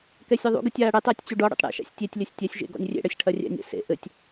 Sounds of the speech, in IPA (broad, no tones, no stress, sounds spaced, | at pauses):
k ɛ sʲ ɘ ðˤ ṵ ɡ ɨ tʲ aː ɽ ɨ tˤ ɐː tʲ t͡ɕ u ɖ ɔ ɽ ṵ tˤ ɽ ɛ̰ ʃ a̰ sʲ tʲ e tʲ lʲ ɐ sʲ tʲ ɛ sʲ ʒ ḛ ɡ ɔ̰ nʲ rʲ ḛ ɽ ɐ sʲ ʈʰ ɐ rʲ ɛ̰ nʲ ɛ̰ s ḛ ʔ ɘ tʲ